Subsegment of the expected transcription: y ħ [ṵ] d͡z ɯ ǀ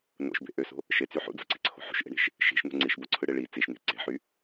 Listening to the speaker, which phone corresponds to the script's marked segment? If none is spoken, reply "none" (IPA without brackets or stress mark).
ṵ